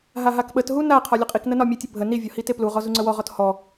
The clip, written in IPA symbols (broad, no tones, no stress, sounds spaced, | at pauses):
ɦ a ɦ a k ɓ ə t ɦ u n a qʰ ɒ lʲ ə qʼ i k n ə n ɒ mʲ e tʲ ə bʱ ə n i vʲ ɒ h i t e p l u ʁ ɔ z u ŋ͡ǀ ə w ɔ ʁ ɔ t h ɔ